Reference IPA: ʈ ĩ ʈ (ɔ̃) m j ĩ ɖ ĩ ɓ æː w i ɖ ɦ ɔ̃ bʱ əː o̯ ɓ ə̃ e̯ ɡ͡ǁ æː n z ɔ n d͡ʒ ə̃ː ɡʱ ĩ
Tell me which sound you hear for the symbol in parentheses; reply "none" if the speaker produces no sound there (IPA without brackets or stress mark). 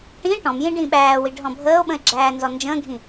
ɔ̃